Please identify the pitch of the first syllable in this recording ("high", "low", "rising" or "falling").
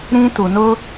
high